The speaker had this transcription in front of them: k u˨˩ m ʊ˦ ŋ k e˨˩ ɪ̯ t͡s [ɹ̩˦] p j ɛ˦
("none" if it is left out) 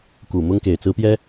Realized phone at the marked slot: ɹ̩˦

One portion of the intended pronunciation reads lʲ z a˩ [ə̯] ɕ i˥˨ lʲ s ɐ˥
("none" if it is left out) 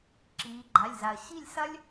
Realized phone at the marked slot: ə̯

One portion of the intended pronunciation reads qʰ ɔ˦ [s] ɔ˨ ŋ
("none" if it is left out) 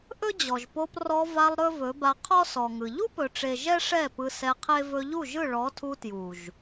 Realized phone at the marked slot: s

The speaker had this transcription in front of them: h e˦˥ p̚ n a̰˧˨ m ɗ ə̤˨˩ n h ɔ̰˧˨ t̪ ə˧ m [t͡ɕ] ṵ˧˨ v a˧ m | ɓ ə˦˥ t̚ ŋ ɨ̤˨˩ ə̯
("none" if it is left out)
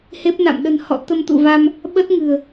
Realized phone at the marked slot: t̪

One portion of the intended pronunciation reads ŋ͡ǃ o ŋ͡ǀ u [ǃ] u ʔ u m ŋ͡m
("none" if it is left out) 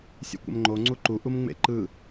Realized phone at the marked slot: ǃ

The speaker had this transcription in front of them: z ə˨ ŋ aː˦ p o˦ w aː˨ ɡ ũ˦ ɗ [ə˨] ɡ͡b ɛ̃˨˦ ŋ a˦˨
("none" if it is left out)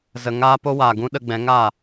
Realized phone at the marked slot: ə˧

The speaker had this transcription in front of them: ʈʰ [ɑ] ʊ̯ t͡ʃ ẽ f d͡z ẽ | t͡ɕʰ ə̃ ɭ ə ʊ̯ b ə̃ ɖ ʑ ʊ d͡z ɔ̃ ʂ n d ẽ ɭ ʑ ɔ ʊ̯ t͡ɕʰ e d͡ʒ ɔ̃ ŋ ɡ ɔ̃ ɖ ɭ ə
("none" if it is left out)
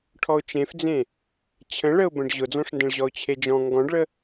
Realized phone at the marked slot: ɔ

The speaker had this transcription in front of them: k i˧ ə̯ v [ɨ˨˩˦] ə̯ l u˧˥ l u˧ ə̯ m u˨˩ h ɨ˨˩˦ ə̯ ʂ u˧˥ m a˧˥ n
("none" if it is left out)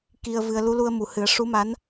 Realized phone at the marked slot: ɨ˧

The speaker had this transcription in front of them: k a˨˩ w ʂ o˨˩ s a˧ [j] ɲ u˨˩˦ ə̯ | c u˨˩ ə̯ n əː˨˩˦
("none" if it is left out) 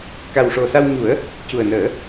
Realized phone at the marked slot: w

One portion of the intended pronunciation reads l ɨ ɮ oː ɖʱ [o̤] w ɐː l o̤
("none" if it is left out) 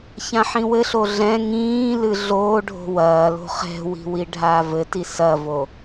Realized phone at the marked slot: o̤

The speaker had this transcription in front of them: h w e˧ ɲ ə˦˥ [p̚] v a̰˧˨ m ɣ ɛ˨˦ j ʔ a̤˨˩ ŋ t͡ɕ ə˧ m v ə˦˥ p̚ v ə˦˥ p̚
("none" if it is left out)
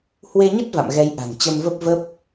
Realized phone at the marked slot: t̚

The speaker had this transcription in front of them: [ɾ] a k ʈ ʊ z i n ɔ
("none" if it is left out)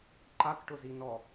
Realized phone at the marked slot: ǃ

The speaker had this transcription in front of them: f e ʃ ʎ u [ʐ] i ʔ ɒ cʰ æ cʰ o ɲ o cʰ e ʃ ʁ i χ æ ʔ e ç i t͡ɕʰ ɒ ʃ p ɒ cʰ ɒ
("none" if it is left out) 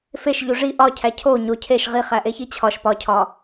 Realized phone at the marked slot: ʐ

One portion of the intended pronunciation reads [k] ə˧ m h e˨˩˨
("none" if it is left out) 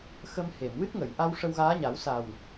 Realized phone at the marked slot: x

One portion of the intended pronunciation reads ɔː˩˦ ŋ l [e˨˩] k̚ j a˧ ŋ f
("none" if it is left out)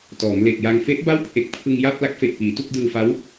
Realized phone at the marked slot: e˨˩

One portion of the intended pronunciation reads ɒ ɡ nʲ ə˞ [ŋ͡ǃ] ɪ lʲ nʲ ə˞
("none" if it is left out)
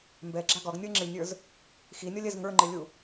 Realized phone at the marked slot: ŋ͡ǁ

